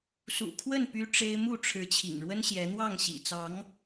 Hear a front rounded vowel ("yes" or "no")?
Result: yes